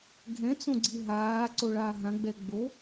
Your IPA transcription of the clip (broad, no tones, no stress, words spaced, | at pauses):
ɡʱɛ̃t͡sõɡ͡ǀi ɦaːǀoɭaː ɦãɡ͡bɛ ɡ͡bo